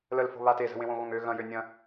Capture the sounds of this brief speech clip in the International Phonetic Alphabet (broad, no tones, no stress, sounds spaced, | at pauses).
l ə l f o̤ β a t e z ə̤ w ẽ w õ ɣ õ ŋ ø ɣ ɐ̃ j ø nʲ ɐ̃